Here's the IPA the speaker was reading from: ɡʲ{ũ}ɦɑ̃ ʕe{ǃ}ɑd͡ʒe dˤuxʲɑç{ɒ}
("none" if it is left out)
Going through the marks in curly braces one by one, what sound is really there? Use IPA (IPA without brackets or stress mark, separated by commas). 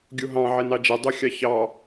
u, n, ɑ